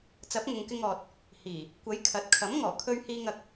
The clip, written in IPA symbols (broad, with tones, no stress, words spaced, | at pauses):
t͡sɐ˨˥p̚ŋʊ˨ŋkɪ˧ŋɔː˨t̚ | hiː˨˩ | kʷɐ˨˥j kʰɐ˨˥t̚ kʰɐ˨˥mŋɔː˨˩ kʰɵ˧ɥhiː˧ŋ ɐ˧k̚